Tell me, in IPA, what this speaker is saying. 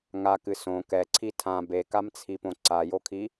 ŋ a k ɨ s õ k ɛ ǀʰ i tʰ ã b e k a m t͡sʰ i p õ ǀ a j o kʰ i

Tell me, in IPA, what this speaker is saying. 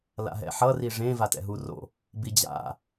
l a̰ ɦ ɛ̰ ħ ʌ r i ʐ ẽ v a t ɛ̰ ɦ u r o̰ | b i d͡ʑ a̰

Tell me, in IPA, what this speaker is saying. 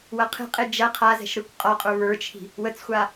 w ɐ qʰ e̤ qʼ e d͡ʒ ɐ qʰ a z ɛ̤ ʃ ɾ ɯ kʷ qʼ ɒ qʼ ə˞ β ə˞ t͡ʃʰ i̤ | w ə t͡s xʷ a

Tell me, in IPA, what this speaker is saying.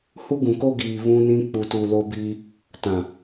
h u˦ ɡ ũ˨ k o˦ ɡ iː˨ β ũ˦ n ĩ˦ k͡p u˨ t u˨ l o˦ b iː˦ | t ã˨

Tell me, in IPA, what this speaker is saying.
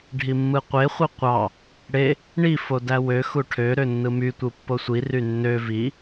ɖʱ i mː ɯ qʷ e χʷ i qʷ ɑ | ɽ e | ɳ i f o d æ w ø x u ʈʰ ø ɾ ø nː ɯ m y tʷ ɯ pː o sʷ i r y nː ø v i

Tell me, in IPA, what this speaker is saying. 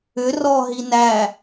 ʏ r ɔ ɦ i n æ

